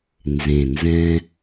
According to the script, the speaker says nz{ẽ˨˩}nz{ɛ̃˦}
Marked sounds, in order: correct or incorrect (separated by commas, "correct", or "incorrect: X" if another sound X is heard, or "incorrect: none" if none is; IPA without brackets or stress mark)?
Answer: correct, correct